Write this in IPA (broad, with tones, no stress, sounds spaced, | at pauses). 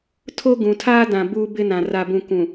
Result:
tʰ o˦ ɡ ũ˨ tʰ aː˦ d ã˨ b uː˦ b ɪ˦ n ã˨ r a˨ b ũ˨ k ũ˨